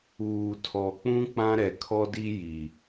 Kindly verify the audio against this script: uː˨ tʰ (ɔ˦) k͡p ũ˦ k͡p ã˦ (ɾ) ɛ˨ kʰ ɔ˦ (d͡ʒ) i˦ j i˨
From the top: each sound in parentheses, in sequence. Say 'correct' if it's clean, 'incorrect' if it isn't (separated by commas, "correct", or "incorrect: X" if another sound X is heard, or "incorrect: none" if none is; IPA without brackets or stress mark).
incorrect: ɔ˨, correct, incorrect: d